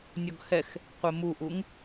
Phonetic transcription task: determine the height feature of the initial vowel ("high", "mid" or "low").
mid